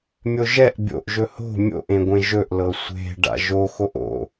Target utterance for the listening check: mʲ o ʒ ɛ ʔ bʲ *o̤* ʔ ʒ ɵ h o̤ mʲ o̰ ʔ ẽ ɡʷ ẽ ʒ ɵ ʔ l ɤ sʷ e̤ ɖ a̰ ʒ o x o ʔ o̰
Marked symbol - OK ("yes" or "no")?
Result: no